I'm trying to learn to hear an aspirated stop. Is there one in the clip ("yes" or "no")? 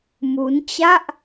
no